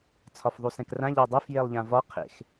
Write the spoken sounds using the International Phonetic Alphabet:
t͡sʰɒfðˤusɛ̃krã ʎædˤef jelˠʎãvɒ qʰḛx

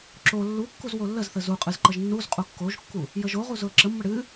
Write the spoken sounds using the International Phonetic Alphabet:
ǁo lːukːuz wolːəzθə zuqʼɨz ǃəʒnːuzqʼu kːoʒkːu | jəʒoʁu zʊə̯ǁəmːə ɽɨ

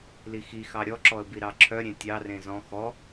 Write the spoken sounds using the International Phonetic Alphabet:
lixi xɑɾʲɔǁɔə̯bi ɾɑǁʰœ ɾʲẽtʲɑrẽ zɔ̃ xɔ

